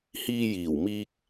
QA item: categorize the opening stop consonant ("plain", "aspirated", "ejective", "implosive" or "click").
plain